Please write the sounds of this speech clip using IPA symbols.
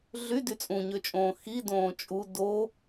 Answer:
ɮy dyt͡sʼũɲøt͡ʃʼõː xi dõːt͡ʃʼu do

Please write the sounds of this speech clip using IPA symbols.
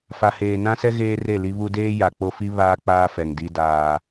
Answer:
fa˨heː˨nã˦sɛ˦ ɣeː˦re˦˨li˦βu˦ deː˦ ja˨k͡po˦fi˦ βaː˦ k͡paː˦fɛ˨ŋ di˦daː˦

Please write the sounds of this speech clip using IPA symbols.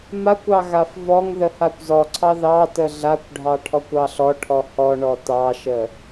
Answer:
makʷɑ ɣafvɔŋðə hakʷzɔǀʰɑ ðɑtə ɮakʷɖʱɑ ʈʰɔkʷɑɬɔʈʰɔ hɔɳɔ tɑʃə

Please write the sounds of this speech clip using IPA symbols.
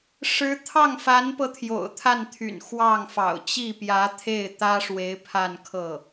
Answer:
ʂɻ̩˧˥ t̪ʰɑ˥˩ŋfa˧˥npɤ˧ t̪ʰjo̰˨˩ʊ̯t̪ʰa˥˩nt̪ʰy̰˨˩n xwɑ˥˩ŋfɑ̰˨˩ʊ̯ t͡ɕi˥˩pjä˧˥t̪ʰe˥˩ɪ̯ t̪ä˥ʂwe˧˥ɪ̯ pʰa˥˧n kʰɤ˥˩

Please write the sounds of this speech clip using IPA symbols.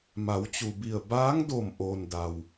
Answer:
ma˩˧wt͡ɕu˩bi˧˩ə̯ baː˧˥ŋdo˧˩m ʔoː˩nda˩w

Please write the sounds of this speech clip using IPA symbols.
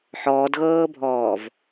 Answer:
ħɔːdɣɤːbʱɔːv

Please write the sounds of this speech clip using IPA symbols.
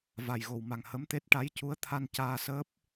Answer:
va˨˩jɣo˨˩wma˨˩ŋ hə˧˥mt̪e˦˥t̚ ʈa˧˥jcu˧˥ə̯t̪ʰa˧n caː˧səː˦˥p̚

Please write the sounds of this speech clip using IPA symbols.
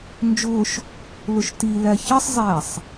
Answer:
nd͡ʒʊːʃ | lʊʃtilæ çʌsˤzˤæːsˤ

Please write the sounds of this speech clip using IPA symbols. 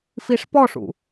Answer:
fiʂpɔʂṵ

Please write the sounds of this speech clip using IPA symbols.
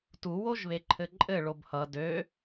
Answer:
tuwoʒβeǃʰɘ ǃʼɘ ɭobhʌ dø

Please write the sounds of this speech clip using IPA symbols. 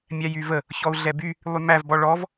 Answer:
mʲæjyvə | çɔu̯ɮɛby | lˠymæv bɔɭɔv

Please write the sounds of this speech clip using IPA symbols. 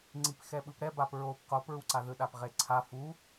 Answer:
ŋ͡ǀipxɛɓɯpɾɛ bapɹop qopɹuǀa ðɯɗapʁeǀʰa fu

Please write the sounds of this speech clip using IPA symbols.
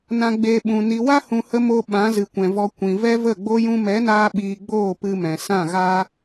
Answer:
nã˧ɡ͡beː˧ɓũ˨ ni˨wa˦hũ˨hə˧ mo˧ ɓã˨˦zɨ˨kʷɛ̃˨vɔ˧ kʷĩ˨vɛ˦və˦˨ɡ͡bo˦ jũ˧mɛ˨˦naː˧ ɓiː˧ɡ͡boː˦˨pɨ˧ mɛ̃˨ sã˦˨ɣaː˦

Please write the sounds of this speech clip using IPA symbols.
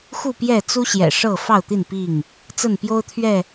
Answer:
xu˥˨pjɛ˥˨t͡su˦ɕjɛ̰˨˩ ʂɤ˥˨ fɑ˥˨ʊ̯t̪i˥˨n pi˥˨ŋ | t͡sə˥˨npjo˦ʊ̯ t̪ʰɥɛ˥˨

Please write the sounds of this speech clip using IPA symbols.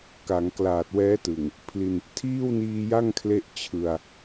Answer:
ka˩˦ŋklaː˨˩t̚wɛː˦˥tɯ˨˩ŋ | pʰli˧n | tʰiː˥˩wniː˧ja˥˩ŋ kʰle˥˩ʔt͡ɕʰɯ˧a̯

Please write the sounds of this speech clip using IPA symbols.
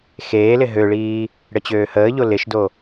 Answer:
xeːlɪ ɦøɭiː | ɽət͡ɕøːhəːʎo lɪʃdo

